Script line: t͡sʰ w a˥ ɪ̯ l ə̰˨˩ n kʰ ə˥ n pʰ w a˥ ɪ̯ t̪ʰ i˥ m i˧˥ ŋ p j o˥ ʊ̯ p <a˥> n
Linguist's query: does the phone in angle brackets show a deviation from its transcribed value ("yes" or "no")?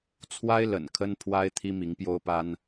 no